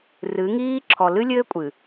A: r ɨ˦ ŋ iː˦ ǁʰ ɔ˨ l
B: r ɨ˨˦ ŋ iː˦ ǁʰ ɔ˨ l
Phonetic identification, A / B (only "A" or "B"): B